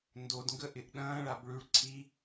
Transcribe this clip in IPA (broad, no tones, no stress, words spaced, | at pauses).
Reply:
ndodŋɡəʔɪʔ ɗɐ̃ːɭab ɭyɭ ǀʰi